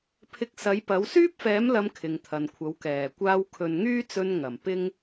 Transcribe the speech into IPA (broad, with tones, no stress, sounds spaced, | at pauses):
pʰ ɪ˧ k̚ s ɐ˨˥ j p ɐ˨˥ w s yː˥ p̚ f ɛː˨˥ m l ɐ˨˧ m kʰ ɪ˨ ŋ t̪ʰ ɐ˨ n kʷʰ ɐ˨˥ w k ɛː˨˩ kʷ aː˧ w kʰ ɵ˨ n ŋ yː˥ t͡s ɵ˧ n ŋ ɐ˨˩ m p ɪ˥ ŋ